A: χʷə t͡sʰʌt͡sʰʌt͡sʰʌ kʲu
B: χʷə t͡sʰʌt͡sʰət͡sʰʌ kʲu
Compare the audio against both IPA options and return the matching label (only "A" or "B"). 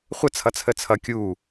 B